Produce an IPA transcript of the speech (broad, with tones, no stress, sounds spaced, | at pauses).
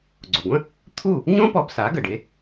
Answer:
ɡ͡ǀ o˩ ɡʷ ə̃˥ | t̪ʰ u˥˩ | ɲ õ˥ p ɔ˧ b s a˩˥ ɡ ə˩ ɖ e˩˥